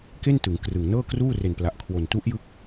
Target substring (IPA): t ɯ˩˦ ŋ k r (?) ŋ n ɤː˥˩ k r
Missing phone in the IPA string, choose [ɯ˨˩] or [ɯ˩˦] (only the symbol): ɯ˨˩